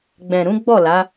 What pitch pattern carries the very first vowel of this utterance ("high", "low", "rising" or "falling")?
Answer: low